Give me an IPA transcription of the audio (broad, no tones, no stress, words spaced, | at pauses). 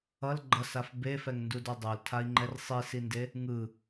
ʌl ɡ͡ǃʌsaf befɛŋndudʌ dˤoltʰai̯ŋ͡ǃɛr sˤisinde | ŋɯ